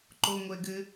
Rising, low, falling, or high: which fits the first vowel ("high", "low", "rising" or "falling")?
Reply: high